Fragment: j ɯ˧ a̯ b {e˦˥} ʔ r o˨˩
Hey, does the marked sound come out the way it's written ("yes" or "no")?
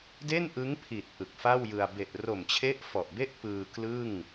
no